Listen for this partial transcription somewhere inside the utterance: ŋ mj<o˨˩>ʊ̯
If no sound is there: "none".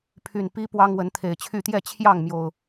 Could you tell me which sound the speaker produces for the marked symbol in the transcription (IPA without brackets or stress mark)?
o˨˩